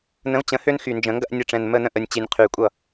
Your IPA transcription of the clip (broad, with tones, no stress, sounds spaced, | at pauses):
n ə̃˨˥ v t͡ɕ ə̃˨˥ h ø˦ n x y˨˩ n d͡ʒ ə̃˨˩˦ ŋ ɡ ɐ˦ ʔ nʲ ə˨˩˦ ʈ͡ʂ ɛ̃˨˩ n m ə˥˩ n ə̃˥˩ ʔ ə˨˩ nʲ t͡ɕ i˨˩˦ nʲ qʰ y˨˩ kʷʼ ʌ˥˩